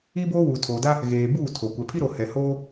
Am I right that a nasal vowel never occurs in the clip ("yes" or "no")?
yes